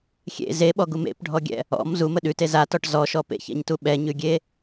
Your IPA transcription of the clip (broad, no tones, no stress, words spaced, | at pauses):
xʲḛ zeɓɔɡum ḛpɖʱɔɡʲɛ̰ | ɔ̰m zumə ɗʉte zatɔʈ zɔʃɔ pḛçɛ̰ɲtu ɓɛɲʉɡʲe